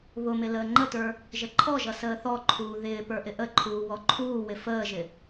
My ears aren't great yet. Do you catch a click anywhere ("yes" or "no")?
yes